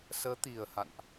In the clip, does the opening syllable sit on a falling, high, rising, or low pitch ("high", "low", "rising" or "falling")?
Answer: rising